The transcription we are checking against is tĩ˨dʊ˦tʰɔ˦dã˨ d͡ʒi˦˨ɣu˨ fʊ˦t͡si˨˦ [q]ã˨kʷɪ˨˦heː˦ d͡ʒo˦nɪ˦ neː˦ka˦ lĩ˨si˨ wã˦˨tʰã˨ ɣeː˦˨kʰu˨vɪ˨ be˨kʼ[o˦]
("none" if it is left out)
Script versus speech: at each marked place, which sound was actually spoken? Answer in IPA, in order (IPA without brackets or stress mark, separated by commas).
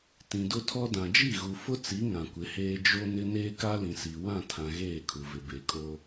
ŋ, o˦